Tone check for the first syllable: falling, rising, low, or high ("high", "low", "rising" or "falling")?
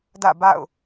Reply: falling